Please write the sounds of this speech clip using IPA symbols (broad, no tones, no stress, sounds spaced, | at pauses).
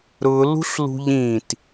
ɾ ʊ l ṳ ɬ l ṳ ʎ ĩ t